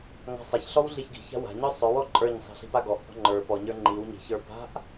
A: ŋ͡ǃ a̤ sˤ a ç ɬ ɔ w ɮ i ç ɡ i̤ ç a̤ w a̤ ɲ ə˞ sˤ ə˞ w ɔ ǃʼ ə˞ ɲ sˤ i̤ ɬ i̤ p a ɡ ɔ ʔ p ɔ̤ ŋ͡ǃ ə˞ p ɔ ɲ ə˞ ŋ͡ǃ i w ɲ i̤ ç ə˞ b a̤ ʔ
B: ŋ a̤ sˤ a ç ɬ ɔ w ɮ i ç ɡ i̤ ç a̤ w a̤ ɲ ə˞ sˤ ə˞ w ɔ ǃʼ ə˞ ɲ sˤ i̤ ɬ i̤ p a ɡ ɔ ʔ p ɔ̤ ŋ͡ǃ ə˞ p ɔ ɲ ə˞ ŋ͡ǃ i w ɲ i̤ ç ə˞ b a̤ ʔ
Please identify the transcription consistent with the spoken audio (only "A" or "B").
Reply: B